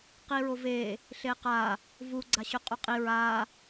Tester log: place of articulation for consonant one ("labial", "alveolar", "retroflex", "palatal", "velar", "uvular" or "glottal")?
uvular